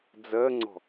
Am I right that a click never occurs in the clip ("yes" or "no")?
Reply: no